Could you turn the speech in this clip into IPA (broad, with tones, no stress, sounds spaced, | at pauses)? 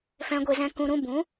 f ɛ̃˧ ɡʷ e˧ z ɛ̃˧ k ũ˨ ɾ ũ˧ b ũ˨˦